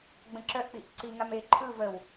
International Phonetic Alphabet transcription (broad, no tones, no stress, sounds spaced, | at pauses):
ɡ͡b ə̃ ǁ œ ʔ k͡p i ʔ ǀ i ŋ a m e ǃʰ ɯ v ə w